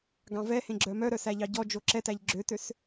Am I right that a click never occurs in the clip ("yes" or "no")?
no